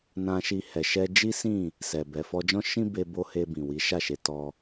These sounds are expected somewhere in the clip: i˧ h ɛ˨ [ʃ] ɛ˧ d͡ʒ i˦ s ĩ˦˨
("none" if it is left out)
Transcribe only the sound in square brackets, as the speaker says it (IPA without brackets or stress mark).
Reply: ʃ